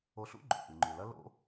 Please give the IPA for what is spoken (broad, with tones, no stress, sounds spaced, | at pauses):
o˧ ɬ ṵ˥ ɡ͡ǃ o̰˩ ʔ ɨ˩ ŋ͡ǃ ʉ˩ l ɐ˥ l o̰˥